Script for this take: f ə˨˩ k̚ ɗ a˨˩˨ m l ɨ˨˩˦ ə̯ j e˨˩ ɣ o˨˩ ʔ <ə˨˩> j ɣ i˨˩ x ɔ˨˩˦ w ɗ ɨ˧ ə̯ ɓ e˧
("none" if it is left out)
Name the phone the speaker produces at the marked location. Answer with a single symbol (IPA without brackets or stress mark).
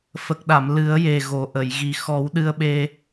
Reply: ə˨˩˨